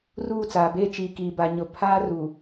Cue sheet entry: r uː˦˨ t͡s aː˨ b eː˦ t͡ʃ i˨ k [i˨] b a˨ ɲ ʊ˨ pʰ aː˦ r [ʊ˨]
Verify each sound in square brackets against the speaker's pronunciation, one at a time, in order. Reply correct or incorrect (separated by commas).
incorrect, incorrect